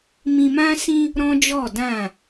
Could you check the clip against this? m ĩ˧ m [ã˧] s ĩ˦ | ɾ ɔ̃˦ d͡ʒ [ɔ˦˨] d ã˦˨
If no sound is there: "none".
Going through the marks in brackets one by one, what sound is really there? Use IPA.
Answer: ã˦, ɔ˦˨

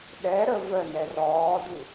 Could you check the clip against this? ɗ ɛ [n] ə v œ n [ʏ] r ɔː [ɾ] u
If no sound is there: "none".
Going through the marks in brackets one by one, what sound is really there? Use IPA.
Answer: ɾ, ɛ, d

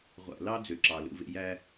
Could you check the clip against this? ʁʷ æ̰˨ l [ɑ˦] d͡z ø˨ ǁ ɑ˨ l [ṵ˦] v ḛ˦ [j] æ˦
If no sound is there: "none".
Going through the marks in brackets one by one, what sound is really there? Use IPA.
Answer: ɑ˦, ṵ˦, j

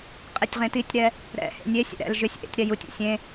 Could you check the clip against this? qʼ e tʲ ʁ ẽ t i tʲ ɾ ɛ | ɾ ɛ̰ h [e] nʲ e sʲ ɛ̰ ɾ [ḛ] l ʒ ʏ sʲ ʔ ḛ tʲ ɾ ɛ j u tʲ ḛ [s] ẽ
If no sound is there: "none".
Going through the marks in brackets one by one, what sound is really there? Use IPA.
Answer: ḛ, ɛ̰, sʲ

